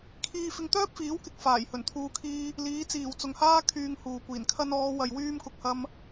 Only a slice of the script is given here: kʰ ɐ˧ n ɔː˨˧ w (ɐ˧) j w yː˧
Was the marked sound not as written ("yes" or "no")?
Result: yes